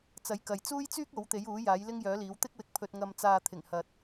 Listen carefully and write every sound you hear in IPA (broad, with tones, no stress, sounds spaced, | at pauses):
t͡s ɐ˨˥ j k ɐ˨ j t͡s uː˥ j t͡s yː˥ k̚ o˨˥ w t̪ e˨˥ j uː˨˥ j aː˨˥ j l ɪ˥ ŋ j œː˨˥ l iː˨˥ w t̪ ɪ˥ k̚ w ɪ˨˥ k̚ pʰ ɵ˧ t̚ ŋ ɐ˧ m t͡s aː˨ t̪ʰ ɪ˨˩ ŋ h ɐ˨ t̚